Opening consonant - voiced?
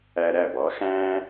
yes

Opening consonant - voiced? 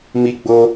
yes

